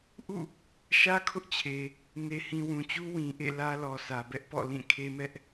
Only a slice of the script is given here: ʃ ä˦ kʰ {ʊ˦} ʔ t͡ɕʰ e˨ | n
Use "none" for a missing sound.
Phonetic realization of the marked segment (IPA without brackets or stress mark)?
ʊ˦